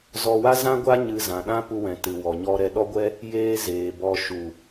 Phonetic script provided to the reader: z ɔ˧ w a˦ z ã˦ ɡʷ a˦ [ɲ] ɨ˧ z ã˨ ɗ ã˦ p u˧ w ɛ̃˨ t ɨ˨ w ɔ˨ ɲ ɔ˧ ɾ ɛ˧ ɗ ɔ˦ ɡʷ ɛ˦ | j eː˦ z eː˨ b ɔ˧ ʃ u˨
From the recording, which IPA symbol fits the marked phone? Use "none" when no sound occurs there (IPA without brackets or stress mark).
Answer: ɲ